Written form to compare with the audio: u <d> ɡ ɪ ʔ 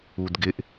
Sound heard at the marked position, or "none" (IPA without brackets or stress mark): d